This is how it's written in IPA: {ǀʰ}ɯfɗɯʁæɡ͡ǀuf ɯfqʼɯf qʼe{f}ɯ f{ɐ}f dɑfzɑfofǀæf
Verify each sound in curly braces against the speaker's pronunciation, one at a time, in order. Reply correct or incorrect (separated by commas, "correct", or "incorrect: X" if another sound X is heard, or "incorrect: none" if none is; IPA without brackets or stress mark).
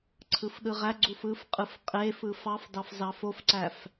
correct, correct, incorrect: ɑ